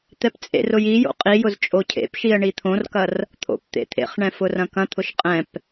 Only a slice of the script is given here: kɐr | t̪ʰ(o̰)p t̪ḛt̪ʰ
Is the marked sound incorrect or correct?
correct